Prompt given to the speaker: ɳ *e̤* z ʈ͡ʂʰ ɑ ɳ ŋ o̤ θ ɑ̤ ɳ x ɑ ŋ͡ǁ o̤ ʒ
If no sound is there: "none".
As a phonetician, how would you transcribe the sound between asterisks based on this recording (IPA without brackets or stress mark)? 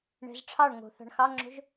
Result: ɛ̤